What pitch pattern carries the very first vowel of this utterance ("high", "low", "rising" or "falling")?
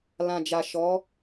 low